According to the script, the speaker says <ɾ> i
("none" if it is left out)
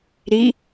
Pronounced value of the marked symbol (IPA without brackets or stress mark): ɾ